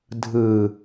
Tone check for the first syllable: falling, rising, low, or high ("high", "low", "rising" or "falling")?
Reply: low